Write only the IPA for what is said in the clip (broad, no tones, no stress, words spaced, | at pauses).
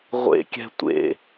ʁʷḛkʲɛ̤ tʷḛ